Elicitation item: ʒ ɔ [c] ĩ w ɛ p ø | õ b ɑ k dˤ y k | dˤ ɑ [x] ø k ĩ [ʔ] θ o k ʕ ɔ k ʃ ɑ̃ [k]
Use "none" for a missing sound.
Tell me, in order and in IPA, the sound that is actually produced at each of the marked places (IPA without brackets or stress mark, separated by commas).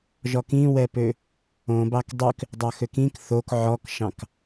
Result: k, x, k, k